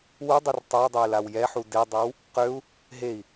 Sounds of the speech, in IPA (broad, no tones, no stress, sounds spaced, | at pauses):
w u dˤ u r tˤ o u̯ dˤ œ i̯ l a w j ɛ ħ u d e dˤ a w | q ø u̯ | ɦ e i̯